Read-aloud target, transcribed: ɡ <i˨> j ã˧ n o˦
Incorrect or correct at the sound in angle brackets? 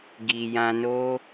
correct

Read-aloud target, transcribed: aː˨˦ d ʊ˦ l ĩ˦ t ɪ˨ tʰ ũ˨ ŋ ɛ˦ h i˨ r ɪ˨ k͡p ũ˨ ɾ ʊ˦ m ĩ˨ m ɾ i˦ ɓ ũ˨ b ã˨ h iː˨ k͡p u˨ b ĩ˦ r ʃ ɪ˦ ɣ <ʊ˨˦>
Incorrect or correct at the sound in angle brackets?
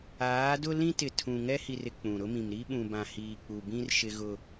incorrect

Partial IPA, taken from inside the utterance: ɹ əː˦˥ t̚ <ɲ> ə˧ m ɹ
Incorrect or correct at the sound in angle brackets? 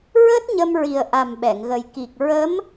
correct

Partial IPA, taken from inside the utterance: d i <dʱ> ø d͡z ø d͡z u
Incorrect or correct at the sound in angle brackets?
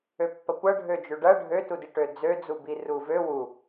incorrect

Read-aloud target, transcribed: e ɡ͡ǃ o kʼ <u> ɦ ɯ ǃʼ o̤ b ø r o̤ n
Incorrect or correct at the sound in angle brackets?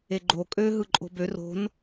incorrect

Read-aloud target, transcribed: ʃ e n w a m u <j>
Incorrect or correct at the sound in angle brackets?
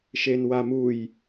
correct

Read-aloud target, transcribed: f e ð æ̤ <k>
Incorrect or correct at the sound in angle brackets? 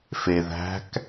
correct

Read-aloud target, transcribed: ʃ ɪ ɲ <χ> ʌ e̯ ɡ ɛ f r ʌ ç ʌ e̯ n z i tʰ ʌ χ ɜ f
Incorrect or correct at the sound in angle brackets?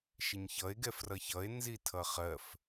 incorrect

